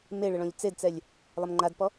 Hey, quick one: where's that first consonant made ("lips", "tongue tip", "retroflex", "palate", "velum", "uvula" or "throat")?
lips